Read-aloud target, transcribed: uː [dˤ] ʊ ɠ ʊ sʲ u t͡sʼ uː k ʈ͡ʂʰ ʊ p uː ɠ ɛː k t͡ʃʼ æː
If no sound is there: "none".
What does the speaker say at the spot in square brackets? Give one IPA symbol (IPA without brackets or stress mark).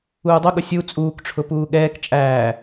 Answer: dˤ